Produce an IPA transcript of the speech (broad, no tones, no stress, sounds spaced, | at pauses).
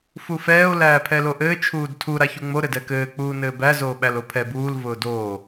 f u f ɛː o̯ l æː pʰ ɛ l o ʔ ɘː t͡ʃʰ uː d tʰ u ɾ a ç u ŋ͡m o ɾ ɘ d ɛ k ɘː k͡p uː n ɘː b æ z oː ɓ æ l o pʰ ɛ b uː l v ʊː d oː